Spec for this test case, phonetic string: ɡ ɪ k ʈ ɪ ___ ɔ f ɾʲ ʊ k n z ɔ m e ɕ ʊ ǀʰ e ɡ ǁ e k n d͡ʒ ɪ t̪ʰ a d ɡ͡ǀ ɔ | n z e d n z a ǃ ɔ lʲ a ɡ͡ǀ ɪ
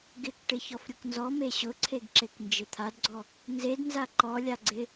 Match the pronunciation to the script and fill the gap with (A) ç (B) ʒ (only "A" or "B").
A